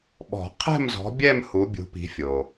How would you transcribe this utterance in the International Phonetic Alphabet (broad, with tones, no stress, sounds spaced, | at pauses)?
ɓ ɔ̤˨˩˦ qʰ ɛ̤˥˧ m z ɔ̤˨˦ bʲ ɛ˥˧ m h u˨˦ bʲ ṳ˨˦ p i̤˨˦ fʲ o˩